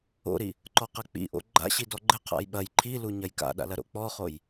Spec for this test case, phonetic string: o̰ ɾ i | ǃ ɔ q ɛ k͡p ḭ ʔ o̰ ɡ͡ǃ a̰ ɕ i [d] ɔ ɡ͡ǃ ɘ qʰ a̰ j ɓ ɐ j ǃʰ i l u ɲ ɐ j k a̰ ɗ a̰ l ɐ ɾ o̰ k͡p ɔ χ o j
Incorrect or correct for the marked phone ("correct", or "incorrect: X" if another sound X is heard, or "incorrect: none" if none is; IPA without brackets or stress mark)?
correct